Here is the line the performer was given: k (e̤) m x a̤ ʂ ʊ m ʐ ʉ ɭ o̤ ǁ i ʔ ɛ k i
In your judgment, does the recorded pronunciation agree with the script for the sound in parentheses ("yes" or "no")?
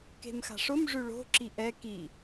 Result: yes